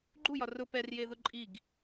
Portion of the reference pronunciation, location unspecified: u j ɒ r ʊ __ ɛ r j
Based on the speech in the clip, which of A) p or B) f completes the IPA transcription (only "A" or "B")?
A